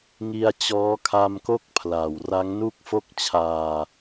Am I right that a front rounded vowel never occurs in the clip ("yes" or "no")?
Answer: yes